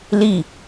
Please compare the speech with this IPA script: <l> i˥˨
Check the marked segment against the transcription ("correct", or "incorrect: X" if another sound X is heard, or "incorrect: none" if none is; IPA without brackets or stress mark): correct